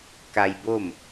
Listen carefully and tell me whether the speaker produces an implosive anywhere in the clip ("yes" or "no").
no